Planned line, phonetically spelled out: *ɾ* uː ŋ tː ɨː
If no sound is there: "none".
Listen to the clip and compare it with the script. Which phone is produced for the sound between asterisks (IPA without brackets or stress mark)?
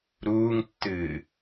ɾ